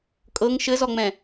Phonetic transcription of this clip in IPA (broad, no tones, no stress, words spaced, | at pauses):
kʼɤŋ ʃɘzɔŋ͡mɛ̃